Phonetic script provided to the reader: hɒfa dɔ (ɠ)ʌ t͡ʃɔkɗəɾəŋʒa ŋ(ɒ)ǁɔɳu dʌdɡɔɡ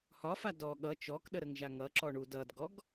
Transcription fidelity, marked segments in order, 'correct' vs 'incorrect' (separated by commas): correct, incorrect